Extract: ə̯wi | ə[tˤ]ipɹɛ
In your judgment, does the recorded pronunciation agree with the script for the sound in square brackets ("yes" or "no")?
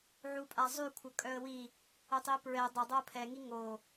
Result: yes